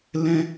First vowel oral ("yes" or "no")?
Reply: no